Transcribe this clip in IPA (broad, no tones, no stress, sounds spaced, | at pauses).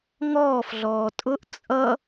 ŋ ɔː f ɮ ɔː tʼ ʊ ʔ t͡sʼ ʌ